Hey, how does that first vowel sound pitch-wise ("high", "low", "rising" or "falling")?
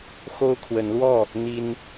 high